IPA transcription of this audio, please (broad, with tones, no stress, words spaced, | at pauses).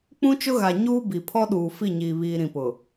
k͡pũ˦t͡ʃʊ˦ɣa˨ ɲuː˦bi˨pʰɔ˦ ɗuː˨ fi˦˨ɲiː˨ βiː˨ ɾĩ˨pʊ˨